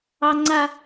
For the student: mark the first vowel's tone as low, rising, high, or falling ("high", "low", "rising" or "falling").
high